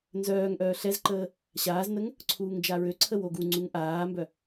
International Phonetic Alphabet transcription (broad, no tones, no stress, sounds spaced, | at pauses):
n z œː ŋ ʔ œː ɬ ɛ z ǃ əː | ɕ aː z n ə ŋ | ǀʰ uː ŋ d͡ʒ a ɹ ø ǀʰ ə w o ɡ u ŋ͡ǀ u ŋ ʔ aː m b œ